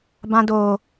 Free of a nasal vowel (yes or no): no